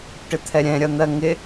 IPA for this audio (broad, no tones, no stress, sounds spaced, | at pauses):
ʈ ɪ t̪ʰ ɛ ɾʲ ɛ̃ ɾʲ ʌ n̪ ɜ ŋ ɪ